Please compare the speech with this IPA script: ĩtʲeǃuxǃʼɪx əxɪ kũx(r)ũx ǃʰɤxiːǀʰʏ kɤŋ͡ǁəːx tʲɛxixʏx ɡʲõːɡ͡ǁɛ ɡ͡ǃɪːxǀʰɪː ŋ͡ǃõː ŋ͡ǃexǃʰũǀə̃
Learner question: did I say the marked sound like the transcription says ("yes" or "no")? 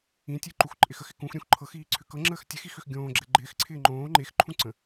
no